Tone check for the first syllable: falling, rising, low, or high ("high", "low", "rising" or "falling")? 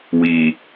low